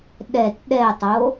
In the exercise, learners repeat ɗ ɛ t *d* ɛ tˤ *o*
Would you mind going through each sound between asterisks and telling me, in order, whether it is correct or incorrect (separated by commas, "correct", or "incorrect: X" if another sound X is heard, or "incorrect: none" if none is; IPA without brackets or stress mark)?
incorrect: ɗ, correct